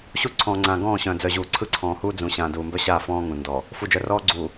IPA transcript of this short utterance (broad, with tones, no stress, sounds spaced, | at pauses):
ɕ u˦ ǀʰ ɔ̃ː˨ ŋ͡ǀ ãː˨ ɡ ɔ̃ː˦˨ ɕ œ̃ː˨ d͡z œ˨ ʑ uː˨ ǀʰ ɯ˦ ǀʰ ɔ̃ː˨ h uː˦ d͡z ũ˨ ɕ ãː˨ d uː˨ m b œ˦ ɕ aː˦˨ f ɔ̃ː˦ ŋ ũ˨ n d ɔ˨ | f u˨ d͡ʒ œ˨ r ɔː˦ ɡ͡ǀ uː˨